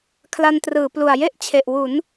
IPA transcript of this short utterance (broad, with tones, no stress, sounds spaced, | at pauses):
kʰ l a˧ n t r ɯː˩˦ p l u˨˩ a̯ j e˥˩ ʔ t͡ɕʰ e˨˩ ʔ w u˩˦ n